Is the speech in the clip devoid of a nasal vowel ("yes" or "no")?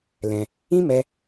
no